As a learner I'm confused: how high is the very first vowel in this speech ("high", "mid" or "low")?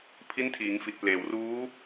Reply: high